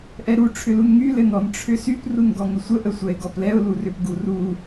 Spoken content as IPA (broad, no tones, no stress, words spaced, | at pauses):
ʔɛɾu ʈ͡ʂʰʏlunŋy lɘnɔn ʈ͡ʂʰʏsyp runɡɔŋʏsʷə ʔəsʷɛɪ̯ɡɔplɛʊ̯ lurʏp ɡuru